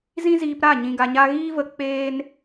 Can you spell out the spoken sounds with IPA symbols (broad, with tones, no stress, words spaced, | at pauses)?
zĩ˦ziː˧pɾa˦˨ ɲĩ˧ɡa˧ɲa˦ ɣiː˦və˧ k͡peː˦n